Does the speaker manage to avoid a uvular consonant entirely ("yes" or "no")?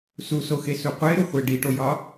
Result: no